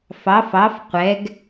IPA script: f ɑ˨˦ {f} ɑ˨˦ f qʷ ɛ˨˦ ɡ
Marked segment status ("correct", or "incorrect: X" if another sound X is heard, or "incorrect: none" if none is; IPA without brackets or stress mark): correct